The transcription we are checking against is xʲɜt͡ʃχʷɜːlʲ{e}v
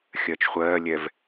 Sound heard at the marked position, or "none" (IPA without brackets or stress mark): ɛ